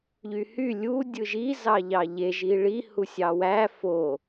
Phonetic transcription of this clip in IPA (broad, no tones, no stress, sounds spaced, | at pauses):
ʎ y h y lʲ u dʲ ɯ ʒ i z ɑ ʎ ɑ ʎ e ʒ i ɭ i h u sʲ ɑ w æ f o